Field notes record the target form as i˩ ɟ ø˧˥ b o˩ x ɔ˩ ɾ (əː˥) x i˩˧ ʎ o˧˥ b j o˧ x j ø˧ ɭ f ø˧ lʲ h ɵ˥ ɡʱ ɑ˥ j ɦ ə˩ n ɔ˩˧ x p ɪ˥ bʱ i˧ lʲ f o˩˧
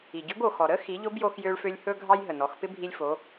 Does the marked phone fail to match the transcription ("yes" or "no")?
yes